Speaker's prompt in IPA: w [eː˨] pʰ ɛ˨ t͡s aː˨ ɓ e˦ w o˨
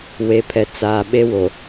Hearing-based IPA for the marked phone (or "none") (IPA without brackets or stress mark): e˨